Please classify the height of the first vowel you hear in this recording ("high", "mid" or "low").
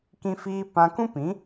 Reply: high